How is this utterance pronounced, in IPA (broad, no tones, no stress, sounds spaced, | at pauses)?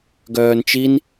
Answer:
ɡ œː n t͡ʃ i n